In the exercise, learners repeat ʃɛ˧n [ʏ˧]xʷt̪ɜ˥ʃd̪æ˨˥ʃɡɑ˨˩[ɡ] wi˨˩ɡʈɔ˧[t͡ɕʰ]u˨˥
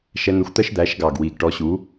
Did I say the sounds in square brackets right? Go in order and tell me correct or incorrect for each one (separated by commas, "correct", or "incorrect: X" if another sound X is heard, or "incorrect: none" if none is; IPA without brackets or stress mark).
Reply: incorrect: ə˧, correct, incorrect: ɕ